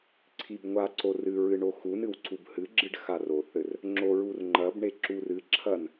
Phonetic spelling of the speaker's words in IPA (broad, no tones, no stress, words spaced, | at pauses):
ǀʰibŋʷa ǀorɨɹɨ ɳoxunɨw ǀubhɨɡ͡ǁɨɖ xaroθɘr | ŋ͡ǁoɹurŋ͡ǃɐbɳe ǁurɨǁʰɐn